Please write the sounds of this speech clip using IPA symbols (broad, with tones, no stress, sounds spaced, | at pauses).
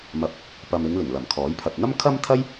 m ɐ˨˥ p̚ | p ɐ˨ m ɪ˨˧ ŋ l ɪ˨˩ ŋ l ɐ˨˩ m kʰ ɔː˨˥ j pʰ ɐ˨ t̚ n̪ ɐ˥ m kʰ ɐ˥ m t̪ʰ ɐ˥ j